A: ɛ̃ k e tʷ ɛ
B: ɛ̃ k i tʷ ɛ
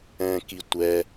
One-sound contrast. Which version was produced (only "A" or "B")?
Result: B